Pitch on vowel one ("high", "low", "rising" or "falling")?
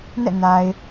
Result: falling